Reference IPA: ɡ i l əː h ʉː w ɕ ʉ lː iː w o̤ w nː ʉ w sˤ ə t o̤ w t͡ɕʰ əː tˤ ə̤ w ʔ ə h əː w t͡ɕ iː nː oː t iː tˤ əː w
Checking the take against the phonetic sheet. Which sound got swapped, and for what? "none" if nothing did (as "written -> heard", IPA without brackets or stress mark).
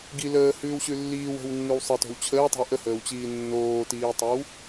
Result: none